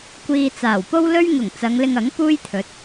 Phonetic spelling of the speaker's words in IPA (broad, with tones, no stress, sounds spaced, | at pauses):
kʷ iː˧ t͡s aː˨˩ w p o˥ w l ɵ˥ ɥ ŋ ʊ˨˩ ŋ t͡s ɐ˨˧ ŋ l ɪ˧ ŋ ɐ˨˥ ŋ p uː˥ j t̪ʰ ɵ˨˥ t̚